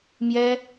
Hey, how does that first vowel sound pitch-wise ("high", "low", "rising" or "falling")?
high